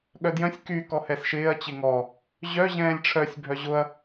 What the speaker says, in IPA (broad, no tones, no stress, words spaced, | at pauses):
ɠœdjœ̃sʲ ky kɔhɛsʃɪːɐ̯ t͡ɕɪŋɔ | ʑœ ʑɛ̃ːlʲʈ͡ʂʰœsʲ bʱœʑʊɐ̯